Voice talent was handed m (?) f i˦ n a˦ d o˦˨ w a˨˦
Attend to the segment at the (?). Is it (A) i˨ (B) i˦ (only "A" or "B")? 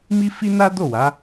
B